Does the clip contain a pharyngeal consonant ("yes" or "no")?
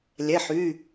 yes